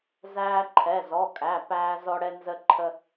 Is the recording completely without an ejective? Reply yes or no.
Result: no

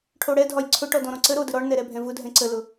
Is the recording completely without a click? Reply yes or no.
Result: no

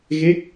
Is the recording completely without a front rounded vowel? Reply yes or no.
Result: yes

